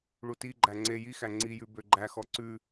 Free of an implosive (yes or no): yes